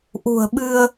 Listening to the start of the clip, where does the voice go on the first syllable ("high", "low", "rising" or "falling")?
low